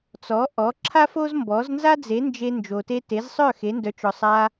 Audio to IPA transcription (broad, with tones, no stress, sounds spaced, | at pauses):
t͡s ɔ˩˥ ʔ ɔ˩˥ ǁʰ a˥ f o˥ z m b ɔ˩˥ z n z a˥ d͡z e˩˥ n d͡ʒ e˧ n d͡ʒ o˩ t e˧ t e˩˥ z sˤ œ˥˩ x e˩˥ n d œ˩˥ t͡ʃ ɔ˩ sˤ a˧